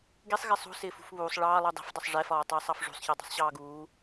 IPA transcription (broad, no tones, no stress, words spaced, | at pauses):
ɡisˤɣɪ sˤṳ sɪːfṳfβuːsˤ ɭɑːlˠu dˤi̤fdˤʊsˤ ʐɛfɒːtˤɪːsˤɑf ʐṳsˤçɜ dˤṳsˤɕɑːɡuː